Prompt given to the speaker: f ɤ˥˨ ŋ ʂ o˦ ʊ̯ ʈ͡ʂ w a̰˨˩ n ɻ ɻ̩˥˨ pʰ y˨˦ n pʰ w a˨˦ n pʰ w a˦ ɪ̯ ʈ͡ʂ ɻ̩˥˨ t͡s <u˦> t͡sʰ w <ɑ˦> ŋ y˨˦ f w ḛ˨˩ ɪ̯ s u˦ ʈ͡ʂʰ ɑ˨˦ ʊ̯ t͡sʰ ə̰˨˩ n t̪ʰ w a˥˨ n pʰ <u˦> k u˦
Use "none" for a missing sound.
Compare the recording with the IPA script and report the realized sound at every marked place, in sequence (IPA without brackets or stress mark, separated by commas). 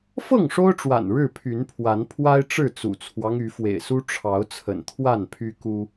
ṵ˨˩, ɑ˦, y˦